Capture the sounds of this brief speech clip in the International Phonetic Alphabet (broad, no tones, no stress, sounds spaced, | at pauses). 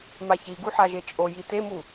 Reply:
m a ç i ɡ u ħ a ʒ e t͡ʃʼ o j i t e m u